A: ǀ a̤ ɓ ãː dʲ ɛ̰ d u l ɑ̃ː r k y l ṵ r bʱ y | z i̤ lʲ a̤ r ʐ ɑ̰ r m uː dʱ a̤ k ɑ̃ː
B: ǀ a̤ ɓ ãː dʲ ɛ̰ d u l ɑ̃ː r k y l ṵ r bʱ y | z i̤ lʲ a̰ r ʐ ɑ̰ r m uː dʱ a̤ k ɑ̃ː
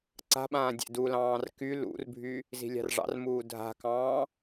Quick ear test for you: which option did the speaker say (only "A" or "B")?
A